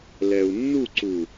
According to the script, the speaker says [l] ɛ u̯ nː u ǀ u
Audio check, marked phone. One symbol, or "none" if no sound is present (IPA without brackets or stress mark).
l